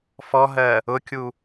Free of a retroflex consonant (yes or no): yes